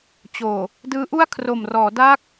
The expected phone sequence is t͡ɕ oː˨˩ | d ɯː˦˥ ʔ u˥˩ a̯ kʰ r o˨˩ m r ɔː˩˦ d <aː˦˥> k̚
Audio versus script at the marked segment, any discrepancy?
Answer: no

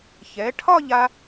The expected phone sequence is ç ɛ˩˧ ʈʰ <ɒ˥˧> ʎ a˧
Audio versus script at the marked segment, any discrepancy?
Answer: no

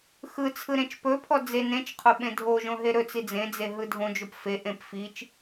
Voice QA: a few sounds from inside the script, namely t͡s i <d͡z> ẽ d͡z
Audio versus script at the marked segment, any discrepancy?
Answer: no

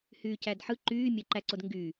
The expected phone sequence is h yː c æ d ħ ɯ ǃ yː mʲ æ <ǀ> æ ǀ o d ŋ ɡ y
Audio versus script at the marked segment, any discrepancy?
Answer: yes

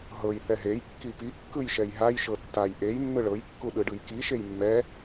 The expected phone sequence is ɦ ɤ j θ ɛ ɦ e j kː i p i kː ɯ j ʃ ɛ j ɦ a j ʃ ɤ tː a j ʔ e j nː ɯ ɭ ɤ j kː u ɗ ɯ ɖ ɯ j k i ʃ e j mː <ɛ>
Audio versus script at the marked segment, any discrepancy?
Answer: no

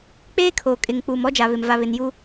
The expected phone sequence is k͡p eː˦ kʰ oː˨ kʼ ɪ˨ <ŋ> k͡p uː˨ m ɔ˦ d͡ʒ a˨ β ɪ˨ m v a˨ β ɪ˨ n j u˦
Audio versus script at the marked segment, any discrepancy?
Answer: no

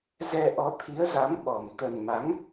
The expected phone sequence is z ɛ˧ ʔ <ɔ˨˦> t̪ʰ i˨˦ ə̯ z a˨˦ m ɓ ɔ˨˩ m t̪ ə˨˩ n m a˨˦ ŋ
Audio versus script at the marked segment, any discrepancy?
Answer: no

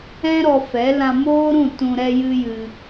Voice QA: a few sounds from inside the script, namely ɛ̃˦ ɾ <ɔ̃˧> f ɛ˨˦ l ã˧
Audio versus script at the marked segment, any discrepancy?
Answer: yes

